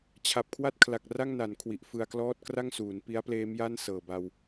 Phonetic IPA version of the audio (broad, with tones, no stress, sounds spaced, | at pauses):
t͡ɕʰ a˨˩ p̚ kʰ w a˥˩ t̚ kʰ l a˨˩ k̚ r a˥˩ ŋ n a˩˦ n kʰ w i˨˩ ʔ f ɯ˧ a̯ k l ɔː˥˩ t̚ k r a˥˩ ŋ s uː˩˦ n p i˦˥ a̯ p l eː˦˥ m j a˥˩ n s ɤː˨˩ b a˧ w